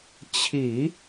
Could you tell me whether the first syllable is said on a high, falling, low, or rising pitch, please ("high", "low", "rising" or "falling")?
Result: low